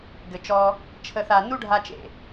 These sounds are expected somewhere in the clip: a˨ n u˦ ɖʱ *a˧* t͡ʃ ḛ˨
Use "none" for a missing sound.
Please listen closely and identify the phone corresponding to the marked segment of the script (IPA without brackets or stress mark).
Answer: a˧